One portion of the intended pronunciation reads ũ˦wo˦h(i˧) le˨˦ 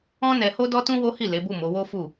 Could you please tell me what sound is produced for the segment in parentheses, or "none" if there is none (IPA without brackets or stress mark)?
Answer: i˦˨